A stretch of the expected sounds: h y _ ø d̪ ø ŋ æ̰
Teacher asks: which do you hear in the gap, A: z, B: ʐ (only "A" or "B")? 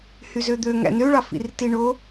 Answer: A